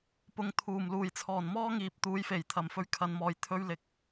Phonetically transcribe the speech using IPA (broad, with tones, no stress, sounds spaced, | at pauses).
p ʊ˨˥ ŋ t̪ʰ uː˨˩ m l uː˨˩ j t͡sʰ ɔː˨˩ n m ɔː˥ ŋ iː˨ p̚ t̪ uː˨˥ j f e˨˩ j t̪ʰ ɐ˨˩ m f ɵ˧ ɥ kʰ ɐ˨˧ n m ɔː˨ j t̪ʰ ɵ˧ ɥ l ɪ˨˥ k̚